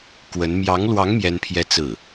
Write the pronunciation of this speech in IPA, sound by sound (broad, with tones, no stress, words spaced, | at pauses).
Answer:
kwə˧˥n mjɑ˧˥ŋlwɑ˧˥ŋ mjɛ˥npʰjɛ˥ t͡sɹ̩˥˩